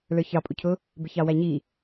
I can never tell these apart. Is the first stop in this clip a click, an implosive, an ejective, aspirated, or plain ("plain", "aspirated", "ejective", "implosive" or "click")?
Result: ejective